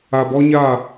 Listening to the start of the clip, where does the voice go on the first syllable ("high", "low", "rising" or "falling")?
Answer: low